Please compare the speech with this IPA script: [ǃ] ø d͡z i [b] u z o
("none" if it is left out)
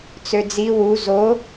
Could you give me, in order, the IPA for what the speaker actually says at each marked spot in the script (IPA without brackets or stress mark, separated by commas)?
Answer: t͡s, w